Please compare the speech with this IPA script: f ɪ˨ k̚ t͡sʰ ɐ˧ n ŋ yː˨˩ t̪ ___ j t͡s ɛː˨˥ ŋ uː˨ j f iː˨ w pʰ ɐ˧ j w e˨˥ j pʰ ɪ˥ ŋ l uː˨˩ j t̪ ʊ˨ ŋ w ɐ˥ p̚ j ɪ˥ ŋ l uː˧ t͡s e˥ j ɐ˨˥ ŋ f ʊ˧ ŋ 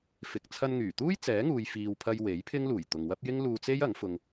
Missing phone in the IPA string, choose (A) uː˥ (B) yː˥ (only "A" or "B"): A